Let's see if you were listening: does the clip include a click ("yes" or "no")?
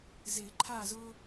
yes